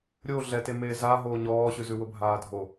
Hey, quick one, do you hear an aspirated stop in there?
no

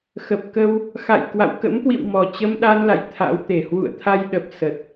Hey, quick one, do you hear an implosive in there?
yes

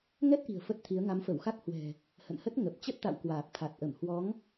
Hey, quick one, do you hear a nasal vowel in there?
no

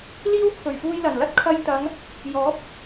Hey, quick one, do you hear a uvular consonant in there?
no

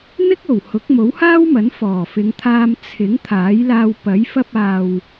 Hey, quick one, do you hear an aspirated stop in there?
yes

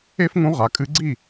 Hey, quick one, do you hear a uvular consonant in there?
yes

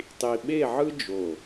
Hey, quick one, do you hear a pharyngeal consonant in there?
yes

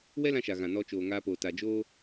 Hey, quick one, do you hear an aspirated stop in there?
no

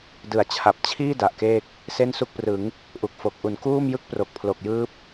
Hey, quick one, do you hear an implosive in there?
no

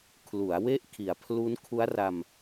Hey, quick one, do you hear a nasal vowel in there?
no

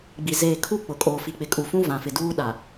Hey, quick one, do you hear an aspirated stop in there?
yes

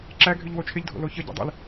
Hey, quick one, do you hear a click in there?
yes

